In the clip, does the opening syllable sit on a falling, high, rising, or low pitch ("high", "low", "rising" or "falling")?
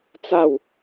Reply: falling